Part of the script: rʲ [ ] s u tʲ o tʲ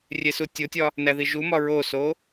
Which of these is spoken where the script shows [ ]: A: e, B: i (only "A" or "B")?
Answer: A